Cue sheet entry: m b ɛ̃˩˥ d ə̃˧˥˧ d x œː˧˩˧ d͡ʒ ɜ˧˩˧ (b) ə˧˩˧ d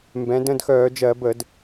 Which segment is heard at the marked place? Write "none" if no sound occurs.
b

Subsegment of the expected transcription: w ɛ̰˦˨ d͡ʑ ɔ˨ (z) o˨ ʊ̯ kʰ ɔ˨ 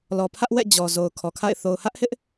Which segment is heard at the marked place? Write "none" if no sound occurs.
z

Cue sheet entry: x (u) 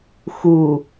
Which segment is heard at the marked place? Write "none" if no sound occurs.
u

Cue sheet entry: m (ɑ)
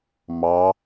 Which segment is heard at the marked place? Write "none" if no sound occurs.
ɑ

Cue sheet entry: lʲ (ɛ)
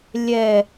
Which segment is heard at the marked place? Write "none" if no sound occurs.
ɛ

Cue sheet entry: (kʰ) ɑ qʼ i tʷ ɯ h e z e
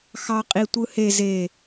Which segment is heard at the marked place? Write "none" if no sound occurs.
x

